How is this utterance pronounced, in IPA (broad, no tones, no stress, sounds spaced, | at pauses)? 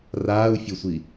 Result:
r aː u̯ fʲ o sʷ i